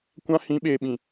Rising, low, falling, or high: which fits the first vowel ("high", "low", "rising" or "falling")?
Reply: high